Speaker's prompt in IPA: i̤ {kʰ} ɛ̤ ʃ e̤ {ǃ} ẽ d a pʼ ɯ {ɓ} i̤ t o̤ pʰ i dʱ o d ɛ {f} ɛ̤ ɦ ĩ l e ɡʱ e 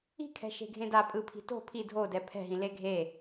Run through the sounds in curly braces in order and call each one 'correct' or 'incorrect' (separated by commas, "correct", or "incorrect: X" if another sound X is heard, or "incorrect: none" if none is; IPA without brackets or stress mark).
correct, incorrect: ɡʱ, incorrect: pʰ, incorrect: pʰ